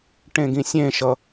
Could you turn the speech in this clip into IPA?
ʈ ẽ ɡ ĩ sʲ ẽ ʃ ʌ

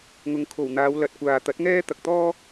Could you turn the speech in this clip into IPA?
ŋ ʊ˨˧ ŋ kʰ o˨˩ w n̪ aː˨˧ w l ɐ˨ t̚ kʷ aː˨ t̪ ɐ˨˥ t̚ ŋ ɛː˥ t̪ ɐ˨ k̚ t̪ ɔː˥

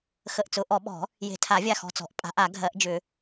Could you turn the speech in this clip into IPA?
x ə˧˩ ʔ t͡s ʊ˨˩˦ ʔ ɔ˨˩˦ ɓ ɔ̤˨˩˦ | j e̤˨˩˦ tʰ a˨˩˦ vʲ a˧˩ x ɔ̤˧˩ t͡s ɔ̤˨˩˦ ʔ pʼ a̤˨˩˦ ʔ a˨˩˦ ɡʱ ɜ˨˩˦ ʔ d͡ʒ ʏ˨˩˦

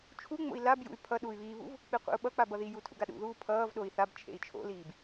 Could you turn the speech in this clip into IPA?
t͡ʃʰ u ŋ͡m o̰ i̯ l a b j ṵ y̯ pʰ ʌ ɗ uː y̯ β iː β ṵ v | k͡p i qʷ ḭ u̯ ɓ ʌ k͡p a b ʌ ð i j u tʰ ṵ ɡ a ɗ ṵ ð uː pʰ ʌː v ɗ o i̯ θ a b t͡ʃʰ ḛ i̯ t͡ʃʰ o̰ l iː b

